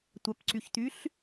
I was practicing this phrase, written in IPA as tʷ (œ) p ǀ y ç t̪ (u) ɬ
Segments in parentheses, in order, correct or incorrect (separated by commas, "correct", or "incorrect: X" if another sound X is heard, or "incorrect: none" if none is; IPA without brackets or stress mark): correct, incorrect: y